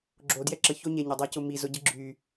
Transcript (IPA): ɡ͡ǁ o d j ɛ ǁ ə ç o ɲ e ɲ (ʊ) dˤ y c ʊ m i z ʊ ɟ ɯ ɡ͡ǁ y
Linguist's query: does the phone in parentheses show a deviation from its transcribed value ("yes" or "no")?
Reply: no